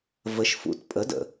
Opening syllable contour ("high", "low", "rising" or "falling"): rising